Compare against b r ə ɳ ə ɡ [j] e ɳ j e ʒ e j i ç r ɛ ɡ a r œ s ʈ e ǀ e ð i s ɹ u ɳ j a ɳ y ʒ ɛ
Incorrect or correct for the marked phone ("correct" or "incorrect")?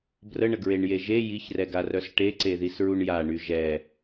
incorrect